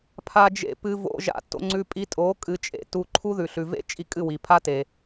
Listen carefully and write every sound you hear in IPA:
pʰa˧d͡ʒḛ˧ pɨ˧vo̰˧ʒa̰˧ to̰˧ŋ͡ǀʉ˧pʼi˧ tʼo˨˦ kʼɨ˧t͡ʃʼḛ˧ tu˧ǃʰu˦ðʉ˨ ɬʉ˨vḛ˦t͡ʃʼi˧ kʼɨ˦˨wi˨pʰa˦te˨

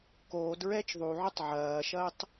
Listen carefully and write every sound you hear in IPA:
koːdɹɛːt͡ʃ ðˤuʕotˤ ʕɐːʃɐːtˤ

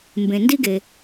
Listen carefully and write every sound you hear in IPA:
mbẽ˩ndi˥ɡe˩

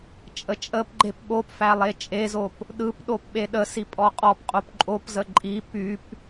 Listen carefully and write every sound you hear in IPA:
t͡ʃʼət͡ʃʼəpɡ͡ǃep ɓopfæ lˠet͡ʃʼezop | ɗɯp ɗopɓeɗəsi pʼɔqʼɔpqʼop ǃʼopzə ǃʼi pyp

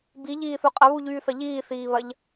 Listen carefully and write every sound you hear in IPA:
biʎiːθu qʼɐβuʎyːθɐ ʎiːθiːβɐʎ

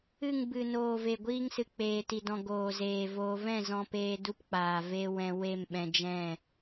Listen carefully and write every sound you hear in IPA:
ɨ˦˨ŋbɨ˨ noː˨ve˨ɡʷiː˧ŋsɨ˨ k͡peː˨ti˨dɔ̃˨ ɡoː˨zeː˨voː˧ vɛ̃˦˨zɔ̃˧peː˧ du˦pk͡paː˨ ve˧ wɛ̃˧ we˦˨mɓɛ̃˧ d͡ʒɛ̃˦˨

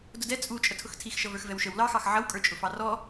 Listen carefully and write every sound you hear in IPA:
dʊdɛ t͡sʼu t͡ʃʼətʰʊxtʰixʃʌ və˞xvɛwʃəw lɑxɑx ʕʌwkʼə˞t͡ʃʼʊfɑ rɔ

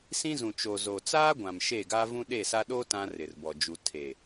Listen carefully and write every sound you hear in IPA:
sĩ˦zũ˨t͡ʃo˨ zo˨t͡saː˦ɡʷã˨m ʃe˦˨ɡa˦ vũ˦ɗe˦˨sa˦ ɗo˦ tã˦rɪ˨rbɔ˨ d͡ʒu˨ tʰe˨

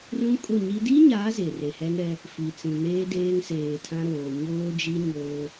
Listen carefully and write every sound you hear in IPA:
rũ˦kʼʊ˦˨ɲi˦ di˦ɲa˨˦ ze˨re˨hɛ˦nɾɛ˦ | fi˨t͡sĩ˨ neː˦ deː˦ŋseː˨tʰã˦ɾoː˨ ɲoː˦d͡ʒi˦ ɲoː˦

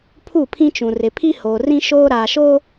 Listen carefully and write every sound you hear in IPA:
pʰu˦˨pʰĩ˦t͡ʃũ˨ rɪ˨pʰi˦hoː˨rĩ˦ ʃoː˦ɾaː˨ʃo˦

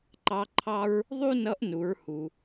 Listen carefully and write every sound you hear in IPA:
ǃɑ˧˥ǃʰɑ˥ɹ | ðˤu˥nʌ˧˥ʔnu˩˧ɹ hu˩

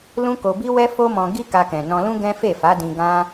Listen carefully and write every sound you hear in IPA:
lũ˦ko˧bi˦ wɛ˦fo˦mɔ̃˧ ɡi˦ka˧kɛ̃˨ nɔ̃˧lũ˦ ɡɛ̃˦fe˦˨fa˨˦dĩ˧ ɡã˦

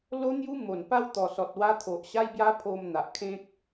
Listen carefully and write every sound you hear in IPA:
lo˦n̪ju˦ mo˨˩npa˥˧w t̪ɔ˨˩sɔ˨t̚wa˦ t̪ʰo˨ʔɕa˦jbja˦pʰo˧m n̪a˨ʔ kʰẽ˦k̚

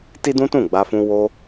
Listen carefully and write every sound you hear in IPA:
ti˦dũ˦tũ˦˨ ɡ͡ba˧fũ˧ wo˧

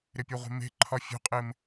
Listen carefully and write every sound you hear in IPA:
ɾɪpʲuʁʷe̤me̤ ǃʰɒfʲṳqʼɪːm

